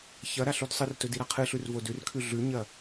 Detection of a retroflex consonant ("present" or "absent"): absent